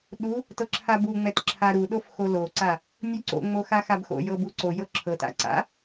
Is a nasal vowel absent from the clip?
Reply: yes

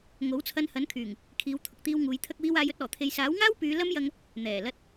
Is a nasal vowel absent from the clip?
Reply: yes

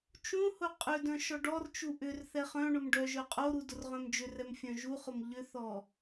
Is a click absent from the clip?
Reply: yes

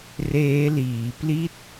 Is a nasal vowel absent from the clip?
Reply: yes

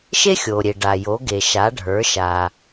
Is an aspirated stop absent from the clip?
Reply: yes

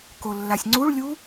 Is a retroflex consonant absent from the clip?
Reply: no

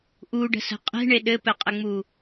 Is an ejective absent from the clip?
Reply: no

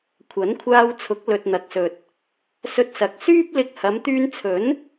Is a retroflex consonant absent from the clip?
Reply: yes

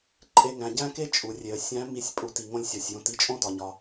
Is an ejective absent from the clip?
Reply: no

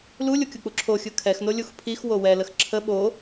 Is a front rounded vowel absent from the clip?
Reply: yes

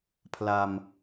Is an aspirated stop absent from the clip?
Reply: no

